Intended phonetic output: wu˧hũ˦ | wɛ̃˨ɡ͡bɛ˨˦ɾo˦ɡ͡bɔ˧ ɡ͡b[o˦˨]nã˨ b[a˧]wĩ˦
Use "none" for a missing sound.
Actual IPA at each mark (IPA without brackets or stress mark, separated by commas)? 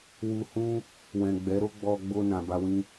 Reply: o˧, a˧